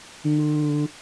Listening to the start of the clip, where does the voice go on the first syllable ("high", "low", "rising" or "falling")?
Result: low